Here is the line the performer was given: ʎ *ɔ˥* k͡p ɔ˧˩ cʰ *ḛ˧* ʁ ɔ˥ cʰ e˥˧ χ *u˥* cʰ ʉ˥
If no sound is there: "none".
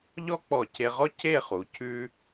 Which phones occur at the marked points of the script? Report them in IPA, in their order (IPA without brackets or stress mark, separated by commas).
ɔ˥, e˧, u˩˧